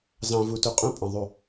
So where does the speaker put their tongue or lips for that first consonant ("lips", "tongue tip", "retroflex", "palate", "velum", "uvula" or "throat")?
tongue tip